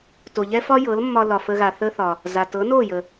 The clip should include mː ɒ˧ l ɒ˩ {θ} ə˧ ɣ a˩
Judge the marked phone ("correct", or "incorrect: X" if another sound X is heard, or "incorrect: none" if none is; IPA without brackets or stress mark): incorrect: f